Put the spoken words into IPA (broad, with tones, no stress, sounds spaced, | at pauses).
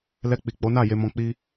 l ɛ˧ k͡p i˨ k͡p o˨˦ n a˦˨ j e˧ m ɔ̃˧ k͡p i˦